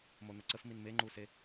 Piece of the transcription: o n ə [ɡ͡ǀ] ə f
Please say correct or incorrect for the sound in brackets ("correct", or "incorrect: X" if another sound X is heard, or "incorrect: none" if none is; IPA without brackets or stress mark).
incorrect: ǀ